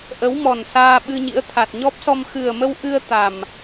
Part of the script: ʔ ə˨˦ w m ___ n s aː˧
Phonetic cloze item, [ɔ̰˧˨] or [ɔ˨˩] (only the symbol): ɔ˨˩